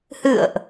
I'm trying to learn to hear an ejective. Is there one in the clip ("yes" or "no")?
no